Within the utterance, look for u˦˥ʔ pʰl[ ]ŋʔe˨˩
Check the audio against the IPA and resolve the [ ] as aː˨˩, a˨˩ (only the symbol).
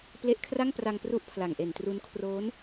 a˨˩